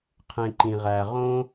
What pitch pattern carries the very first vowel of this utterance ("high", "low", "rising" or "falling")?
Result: low